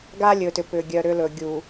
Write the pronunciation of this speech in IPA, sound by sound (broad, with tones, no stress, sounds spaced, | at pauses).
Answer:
ɡ a˦ lʲ ɵ˨ t ʏ˨ p ʏ˨ ɡʲ œ˨ ɾ ʏ˦ l ɵ˨ ɡʲ u˨